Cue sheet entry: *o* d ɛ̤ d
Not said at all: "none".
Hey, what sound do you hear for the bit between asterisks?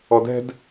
ɔ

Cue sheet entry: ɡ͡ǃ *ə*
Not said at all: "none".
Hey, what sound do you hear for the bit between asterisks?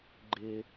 ɪ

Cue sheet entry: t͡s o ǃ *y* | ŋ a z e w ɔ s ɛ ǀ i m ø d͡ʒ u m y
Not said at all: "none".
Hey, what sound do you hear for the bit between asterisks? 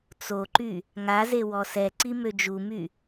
y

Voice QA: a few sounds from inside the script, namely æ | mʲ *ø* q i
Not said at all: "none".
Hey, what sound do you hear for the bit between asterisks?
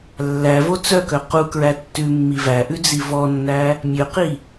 ø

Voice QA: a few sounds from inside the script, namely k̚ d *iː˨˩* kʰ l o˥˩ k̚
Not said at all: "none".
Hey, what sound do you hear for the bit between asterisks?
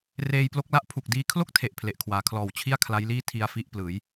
iː˧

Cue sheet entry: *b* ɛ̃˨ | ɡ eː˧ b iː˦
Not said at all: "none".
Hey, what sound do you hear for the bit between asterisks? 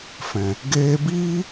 f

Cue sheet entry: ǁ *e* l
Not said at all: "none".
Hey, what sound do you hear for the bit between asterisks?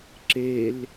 e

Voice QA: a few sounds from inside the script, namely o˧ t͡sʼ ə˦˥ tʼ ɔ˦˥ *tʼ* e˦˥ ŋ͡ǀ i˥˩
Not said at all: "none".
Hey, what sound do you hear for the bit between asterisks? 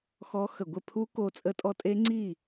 tʼ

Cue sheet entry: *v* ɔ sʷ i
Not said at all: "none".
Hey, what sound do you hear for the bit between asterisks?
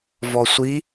v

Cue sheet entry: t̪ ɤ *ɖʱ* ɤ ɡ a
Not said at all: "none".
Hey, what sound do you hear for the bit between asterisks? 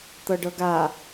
ɖ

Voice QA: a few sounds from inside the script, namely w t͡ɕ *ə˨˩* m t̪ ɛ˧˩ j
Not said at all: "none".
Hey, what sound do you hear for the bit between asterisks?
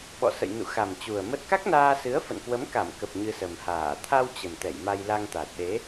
ə˨˩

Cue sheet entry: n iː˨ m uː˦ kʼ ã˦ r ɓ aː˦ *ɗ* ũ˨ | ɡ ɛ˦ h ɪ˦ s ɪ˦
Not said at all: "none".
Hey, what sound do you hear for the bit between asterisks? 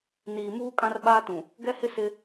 t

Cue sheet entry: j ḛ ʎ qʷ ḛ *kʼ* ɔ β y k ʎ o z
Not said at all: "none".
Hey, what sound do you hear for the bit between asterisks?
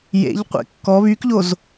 kː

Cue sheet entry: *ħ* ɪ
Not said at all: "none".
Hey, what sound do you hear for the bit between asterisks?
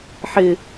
ħ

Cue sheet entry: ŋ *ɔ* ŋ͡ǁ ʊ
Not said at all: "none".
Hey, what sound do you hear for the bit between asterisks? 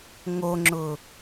o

